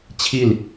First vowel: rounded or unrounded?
unrounded